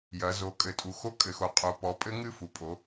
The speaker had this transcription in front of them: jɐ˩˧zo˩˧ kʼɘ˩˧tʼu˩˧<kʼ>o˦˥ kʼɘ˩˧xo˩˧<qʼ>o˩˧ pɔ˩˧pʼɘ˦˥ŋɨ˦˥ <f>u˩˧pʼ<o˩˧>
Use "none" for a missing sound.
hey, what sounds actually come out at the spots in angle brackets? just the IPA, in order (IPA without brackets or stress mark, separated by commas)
x, qʼ, f, o˩˧